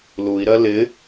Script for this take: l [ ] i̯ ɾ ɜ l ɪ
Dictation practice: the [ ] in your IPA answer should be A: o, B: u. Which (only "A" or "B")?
B